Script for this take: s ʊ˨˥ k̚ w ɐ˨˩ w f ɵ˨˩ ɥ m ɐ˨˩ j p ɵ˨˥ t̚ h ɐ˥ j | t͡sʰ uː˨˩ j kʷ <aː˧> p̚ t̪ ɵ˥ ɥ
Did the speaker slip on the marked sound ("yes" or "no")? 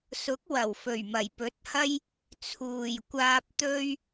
no